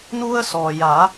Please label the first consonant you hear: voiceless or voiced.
voiced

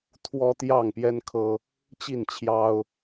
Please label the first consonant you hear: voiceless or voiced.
voiceless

